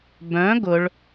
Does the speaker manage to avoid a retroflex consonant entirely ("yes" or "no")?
no